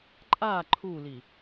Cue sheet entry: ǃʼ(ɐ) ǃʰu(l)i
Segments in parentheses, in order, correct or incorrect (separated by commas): incorrect, correct